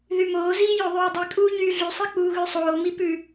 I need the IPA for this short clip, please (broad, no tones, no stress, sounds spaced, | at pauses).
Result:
ð y m oː z iː j o ðˤ ʉː dˤ i kʼ uː ɲ yː ɮ y sˤ i k͡p uː ɣ ʉ sˤ oː m i p ʉ